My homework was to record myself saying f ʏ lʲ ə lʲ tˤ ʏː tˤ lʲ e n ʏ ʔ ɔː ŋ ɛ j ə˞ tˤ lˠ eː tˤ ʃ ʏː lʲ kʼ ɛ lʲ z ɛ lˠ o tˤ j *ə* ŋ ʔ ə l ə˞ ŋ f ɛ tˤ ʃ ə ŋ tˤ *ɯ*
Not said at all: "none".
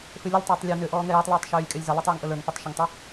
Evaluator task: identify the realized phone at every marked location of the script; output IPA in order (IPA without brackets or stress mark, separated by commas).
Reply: ə, ɯ